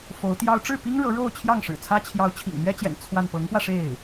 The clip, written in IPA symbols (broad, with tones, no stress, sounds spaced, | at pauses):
f o˧˥ ʊ̯ t̪ j ɑ˥ ʊ̯ ʈ͡ʂ ɻ̩˥˩ p i˥ ŋ ɻ ɤ˧˥ ɻ o˥˧ ʊ̯ t͡ɕʰ j ɑ˥˩ ŋ ʂ ɻ̩˨˩ t͡sʰ ä˥ t͡ɕʰ j ɑ˧˥ ʊ̯ t͡ɕʰ ḭ˨˩ ŋ n̪ ɥ ɛ˥ t͡ɕ j ɛ̰˨˩ n t͡sʰ w a˥˩ n p ɤ˧˥ ŋ p w ä˧ ʂ e˥˩ ɪ̯